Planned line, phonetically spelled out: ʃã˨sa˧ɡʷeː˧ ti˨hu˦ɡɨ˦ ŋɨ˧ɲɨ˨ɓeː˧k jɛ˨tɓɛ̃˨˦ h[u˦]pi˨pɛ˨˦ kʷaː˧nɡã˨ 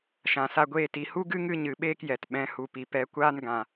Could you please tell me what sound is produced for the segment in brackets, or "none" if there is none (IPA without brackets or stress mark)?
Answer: u˨